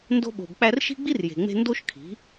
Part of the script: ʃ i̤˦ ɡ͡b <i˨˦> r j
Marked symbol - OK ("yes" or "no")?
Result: no